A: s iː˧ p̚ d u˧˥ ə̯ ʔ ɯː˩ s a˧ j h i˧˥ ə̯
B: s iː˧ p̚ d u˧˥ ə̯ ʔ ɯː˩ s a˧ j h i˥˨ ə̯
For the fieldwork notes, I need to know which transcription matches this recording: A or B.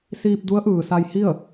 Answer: B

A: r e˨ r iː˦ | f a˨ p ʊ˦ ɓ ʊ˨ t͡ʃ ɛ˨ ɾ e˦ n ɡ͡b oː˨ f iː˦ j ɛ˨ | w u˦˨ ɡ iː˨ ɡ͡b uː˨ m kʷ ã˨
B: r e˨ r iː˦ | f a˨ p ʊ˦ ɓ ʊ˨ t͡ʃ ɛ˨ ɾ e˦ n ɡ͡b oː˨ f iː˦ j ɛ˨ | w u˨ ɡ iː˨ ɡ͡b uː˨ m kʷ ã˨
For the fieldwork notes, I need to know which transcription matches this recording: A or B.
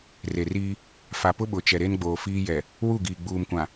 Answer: A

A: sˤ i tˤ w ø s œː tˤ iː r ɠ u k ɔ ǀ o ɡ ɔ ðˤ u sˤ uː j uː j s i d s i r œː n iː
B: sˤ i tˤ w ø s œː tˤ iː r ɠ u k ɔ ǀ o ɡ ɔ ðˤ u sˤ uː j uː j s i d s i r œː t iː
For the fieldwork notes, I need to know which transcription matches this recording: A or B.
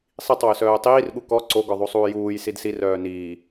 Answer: A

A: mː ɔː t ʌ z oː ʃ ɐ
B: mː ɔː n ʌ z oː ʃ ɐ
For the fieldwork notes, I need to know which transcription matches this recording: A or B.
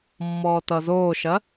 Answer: A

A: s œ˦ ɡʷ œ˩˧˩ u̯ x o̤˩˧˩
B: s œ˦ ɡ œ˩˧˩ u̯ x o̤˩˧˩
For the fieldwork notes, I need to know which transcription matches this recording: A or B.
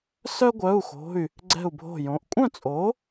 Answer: A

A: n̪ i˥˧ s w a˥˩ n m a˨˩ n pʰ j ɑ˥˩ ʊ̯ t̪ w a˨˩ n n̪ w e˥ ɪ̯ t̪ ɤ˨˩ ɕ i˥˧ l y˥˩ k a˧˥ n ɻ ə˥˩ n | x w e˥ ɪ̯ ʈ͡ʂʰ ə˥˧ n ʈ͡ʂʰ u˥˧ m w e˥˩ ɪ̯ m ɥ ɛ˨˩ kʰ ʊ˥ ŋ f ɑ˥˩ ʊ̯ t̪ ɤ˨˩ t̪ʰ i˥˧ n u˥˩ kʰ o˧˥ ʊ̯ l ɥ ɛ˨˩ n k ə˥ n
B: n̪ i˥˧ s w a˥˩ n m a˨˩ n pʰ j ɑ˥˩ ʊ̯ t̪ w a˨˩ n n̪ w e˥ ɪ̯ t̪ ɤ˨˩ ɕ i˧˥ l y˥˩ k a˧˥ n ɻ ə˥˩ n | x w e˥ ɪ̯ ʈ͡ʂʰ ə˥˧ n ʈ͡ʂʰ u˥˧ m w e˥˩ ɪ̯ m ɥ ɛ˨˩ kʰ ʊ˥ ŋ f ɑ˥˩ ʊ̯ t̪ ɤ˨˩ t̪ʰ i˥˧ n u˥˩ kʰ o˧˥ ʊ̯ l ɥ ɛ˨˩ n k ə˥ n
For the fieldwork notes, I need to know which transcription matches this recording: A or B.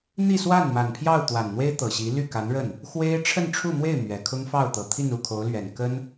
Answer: B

